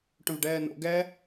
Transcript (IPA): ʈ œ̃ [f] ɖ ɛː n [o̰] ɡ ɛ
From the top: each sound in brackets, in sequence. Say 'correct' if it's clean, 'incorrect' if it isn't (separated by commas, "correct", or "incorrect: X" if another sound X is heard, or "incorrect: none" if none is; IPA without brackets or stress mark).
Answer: incorrect: v, correct